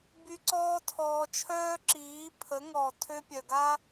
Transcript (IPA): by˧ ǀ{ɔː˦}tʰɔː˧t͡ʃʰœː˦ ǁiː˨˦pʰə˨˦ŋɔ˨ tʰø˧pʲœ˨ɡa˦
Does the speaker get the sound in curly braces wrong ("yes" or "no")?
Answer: no